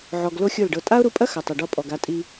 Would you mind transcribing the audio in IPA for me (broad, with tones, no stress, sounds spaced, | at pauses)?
ʕ ɔ˨ ɡ l o˦ xʲ o˦˨ l ɖ ɤ˧ tʼ a˦ ʊ̯ ɾ u˧ pʼ ɐ˦ x ɐ˨ tˤ ɐ˨ ɖ ɔ˧ pʼ ɔ˨ ɡ a˧ tʼ i˧